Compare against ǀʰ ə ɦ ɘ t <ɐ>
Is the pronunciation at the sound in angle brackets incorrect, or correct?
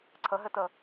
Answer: incorrect